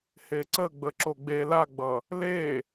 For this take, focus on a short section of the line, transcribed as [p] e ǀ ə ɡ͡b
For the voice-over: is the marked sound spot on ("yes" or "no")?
no